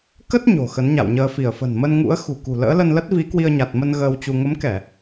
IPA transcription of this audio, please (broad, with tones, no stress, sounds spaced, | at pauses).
k ə˦˥ t̚ ɲ o̤˨˩ x ə˨˦ n ɲ a̰˧˨ w ɲ əː˧ f i˧˩ ə̯ f ə̤˨˩ n m ə˧ n ŋ ṵ˧˥ ə̯ x ṳ˨˩ k ṳ˨˩ l ə̰ː˧˥ l ə˧ n l ə˦˥ t̚ v i˨˦ k w i˧ ə̯ ɲ a˨˩ t̚ m ə˧ n ɣ əː˧ w t͡ɕ u˧ ŋ ə˨˦ m k ɛ˧˩˨